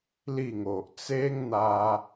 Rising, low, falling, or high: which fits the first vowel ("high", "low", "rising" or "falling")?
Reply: falling